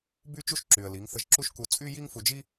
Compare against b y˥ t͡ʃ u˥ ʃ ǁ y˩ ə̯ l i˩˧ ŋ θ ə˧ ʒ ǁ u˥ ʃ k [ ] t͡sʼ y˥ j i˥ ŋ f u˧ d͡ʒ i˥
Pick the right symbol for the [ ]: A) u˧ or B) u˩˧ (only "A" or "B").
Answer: A